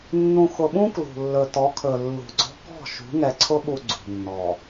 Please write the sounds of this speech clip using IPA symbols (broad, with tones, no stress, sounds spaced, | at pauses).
nː ũ˨ x ʊ˨ ɓ ũ˦ k l ṳ˨ lː ɵ˨ t ɔ˨˦ kʰ ɵ˨ lː ṳ˨ ɡ͡ǀ ɔ̤˦ k ɔ̤˦˨ ʃ ṳ˨˦ ŋ ɛ˨ ǀʰ ʊ˦ ɓ u˨ ɡ͡ǀ ṳ˨ nː ɔ˨